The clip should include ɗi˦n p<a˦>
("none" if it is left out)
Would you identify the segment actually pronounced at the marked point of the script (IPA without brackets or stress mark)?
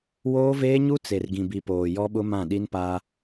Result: a˦